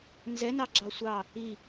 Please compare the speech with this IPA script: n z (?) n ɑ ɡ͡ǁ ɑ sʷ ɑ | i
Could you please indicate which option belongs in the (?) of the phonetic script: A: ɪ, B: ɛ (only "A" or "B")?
B